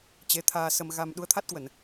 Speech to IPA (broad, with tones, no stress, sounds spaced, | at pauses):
t͡ɕ e˨˦ t̪ʰ aː˧ s ə˧ m ɣ a˧ m ɗ u˨˦ ə̯ t̪ʰ a˦˥ t̚ k w ə˧˩˨ n